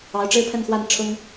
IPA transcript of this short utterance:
ɑ˧˥ʊ̯ʈ͡ʂɻ̩˥pʰə˥˧nxwa˥˩n ʈ͡ʂʰʊ˥ŋ

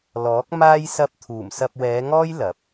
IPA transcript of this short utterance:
lɔː˨˥k̚maː˥j sɐ˧p̚t̪ʰuː˨˩m sɐ˧p̚wɛː˨˧ŋɔː˥j lɐ˨˥p̚

